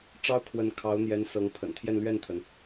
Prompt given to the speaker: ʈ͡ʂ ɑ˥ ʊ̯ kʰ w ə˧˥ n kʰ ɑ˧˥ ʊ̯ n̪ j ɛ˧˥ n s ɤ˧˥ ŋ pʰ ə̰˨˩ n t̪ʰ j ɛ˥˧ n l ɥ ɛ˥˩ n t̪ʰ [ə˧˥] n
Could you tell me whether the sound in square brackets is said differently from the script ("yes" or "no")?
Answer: yes